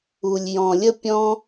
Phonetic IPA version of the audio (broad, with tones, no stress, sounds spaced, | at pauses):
u˨ lʲ j ɔ̃˨ lʲ ə˦ pʲ ɔ̃˦